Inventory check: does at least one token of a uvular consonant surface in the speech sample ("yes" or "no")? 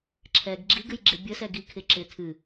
no